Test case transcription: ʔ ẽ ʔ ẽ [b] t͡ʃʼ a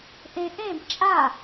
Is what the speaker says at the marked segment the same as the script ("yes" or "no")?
yes